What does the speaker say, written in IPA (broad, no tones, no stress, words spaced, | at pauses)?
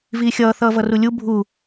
viːxʲʌː θʌːvʌrulʲu bʱu